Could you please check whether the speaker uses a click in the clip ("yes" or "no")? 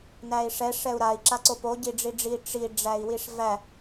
yes